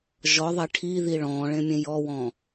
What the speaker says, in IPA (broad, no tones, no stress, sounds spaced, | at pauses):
ʒ ɔ ðˤ e ʈʰ i ð i ɭ ɔ̃ ɭ ẽ mʲ ẽ j ɔ w ɔ̃